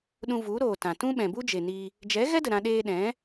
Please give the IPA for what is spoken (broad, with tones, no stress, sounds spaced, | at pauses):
ɗ ũ˧ v u˨˦ ɾ oː˨ t ã˨ t ũ˦ ɓ ɛ̃˨ b u˦ d͡ʒ e˨ n i˧ | d͡ʒ ɛ˨˦ ɣ ɛ˦ d ə˨ ɾ ã˧ ɗ eː˧ ɗ ɛ̃˨˦